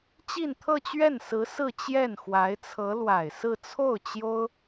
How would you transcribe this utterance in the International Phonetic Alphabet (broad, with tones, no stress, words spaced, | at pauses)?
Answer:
t͡ɕi˥˧nt̪ʰɤ˥˧t͡ɕɥɛ˥˩nsɹ̩˧˥ sɹ̩˥˧t͡ɕjɛ˥˩nxwa˧˥ɪ̯t͡sʰɤ˧˥ lwa˨˩ɪ̯sɹ̩˥˧ t͡sʰo˥˩ʊ̯t͡ɕjo˥ʊ̯